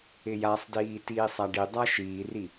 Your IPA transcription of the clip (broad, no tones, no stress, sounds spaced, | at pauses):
ɪ j a sˤ d iː t iː sˤ a ɖ i dˤ a ʃ iː r i